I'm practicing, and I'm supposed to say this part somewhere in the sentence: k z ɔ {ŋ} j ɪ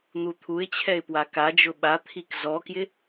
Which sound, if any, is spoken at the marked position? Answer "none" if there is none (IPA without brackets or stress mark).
k